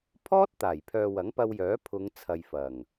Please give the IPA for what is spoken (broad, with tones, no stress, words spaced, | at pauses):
pʰɔː˥t̚t̪aː˨˩jpʰœː˨ wɐ˨˥ŋpɐ˧wjœː˨˥ pʰʊ˨˧ŋ t͡sʰɐ˨jfɐ˨˩ŋ